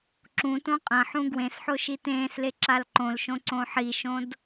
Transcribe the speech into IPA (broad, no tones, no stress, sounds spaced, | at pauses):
ǁ ũ t õ qʼ ɐ̃ ħ ũ ɡ w ẽ s ħ o ʃ i t ẽː s l e ǁ a l ǃ õ l ʃ õ ǀ õ ħ i ʃ õ d